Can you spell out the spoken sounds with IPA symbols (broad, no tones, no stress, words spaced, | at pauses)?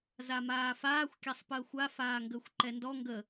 zamaːfaːxʷ kʲasˤpəːxʷa faːŋɡəːxʷǃɛndɔ ŋɡə